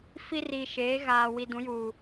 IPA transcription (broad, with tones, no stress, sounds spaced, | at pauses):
f i˦ r i˨ ʃ eː˨˦ ɣ aː˨ w i˨ d ũ˨˦ j uː˨